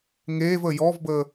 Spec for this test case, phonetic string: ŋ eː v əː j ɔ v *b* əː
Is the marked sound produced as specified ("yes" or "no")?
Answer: yes